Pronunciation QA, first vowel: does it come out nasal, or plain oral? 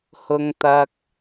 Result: oral